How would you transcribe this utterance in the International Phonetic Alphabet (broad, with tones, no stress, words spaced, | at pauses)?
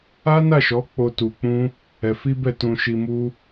a˦na˦˨ʃɔ˨˦k͡po˧ tu˧k͡pũ˦ | ɛ˧fi˦bɛ˦˨ tũ˧ʃi˧mu˦